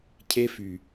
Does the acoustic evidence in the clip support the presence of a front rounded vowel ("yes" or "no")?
yes